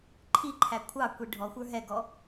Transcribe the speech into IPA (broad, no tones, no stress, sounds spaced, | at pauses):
ǃʰ i ǃʰ æ kʷʰ ɑ kʷ i ɖʱ ɔ xʷ ə˞ ɦ ɛ ɡ ɔ